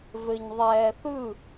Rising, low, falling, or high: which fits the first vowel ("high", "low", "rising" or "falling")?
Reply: low